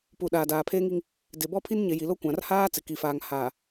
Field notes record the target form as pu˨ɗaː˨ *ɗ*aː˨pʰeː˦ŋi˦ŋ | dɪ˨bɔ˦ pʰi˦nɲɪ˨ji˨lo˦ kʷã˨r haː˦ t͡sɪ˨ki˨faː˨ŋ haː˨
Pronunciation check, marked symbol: incorrect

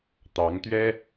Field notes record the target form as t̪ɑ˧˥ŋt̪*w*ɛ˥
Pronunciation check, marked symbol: incorrect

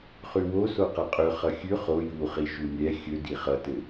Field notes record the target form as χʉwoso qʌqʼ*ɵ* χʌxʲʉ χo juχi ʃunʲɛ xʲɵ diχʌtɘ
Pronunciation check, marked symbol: correct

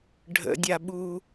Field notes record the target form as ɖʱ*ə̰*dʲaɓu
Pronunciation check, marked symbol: correct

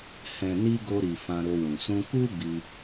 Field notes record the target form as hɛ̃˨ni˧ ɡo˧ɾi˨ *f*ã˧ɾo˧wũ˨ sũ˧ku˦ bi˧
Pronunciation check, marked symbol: correct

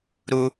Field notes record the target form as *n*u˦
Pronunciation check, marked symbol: incorrect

